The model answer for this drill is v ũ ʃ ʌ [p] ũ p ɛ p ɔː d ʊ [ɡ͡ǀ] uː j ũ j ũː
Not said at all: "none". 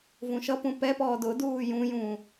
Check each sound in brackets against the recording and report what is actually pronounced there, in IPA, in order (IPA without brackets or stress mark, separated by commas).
p, d